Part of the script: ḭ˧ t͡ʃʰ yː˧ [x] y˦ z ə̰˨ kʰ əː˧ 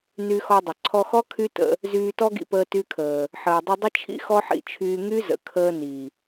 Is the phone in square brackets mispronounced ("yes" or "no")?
yes